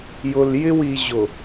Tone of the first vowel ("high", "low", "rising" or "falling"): low